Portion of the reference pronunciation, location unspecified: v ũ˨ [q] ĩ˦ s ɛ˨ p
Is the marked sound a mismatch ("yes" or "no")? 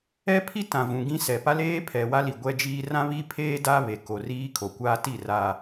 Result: yes